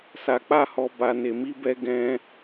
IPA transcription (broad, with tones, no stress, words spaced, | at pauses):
sa˧k͡pa˦hɔ˧ ba˧ne˧mi˦bɛ˦ ɡɛ̃˦